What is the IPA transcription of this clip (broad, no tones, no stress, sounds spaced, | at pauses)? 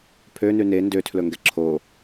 pʰ ø n ʉ n e n d ø tʰ l ɵ ŋ ɡ ɛ ǁʰ o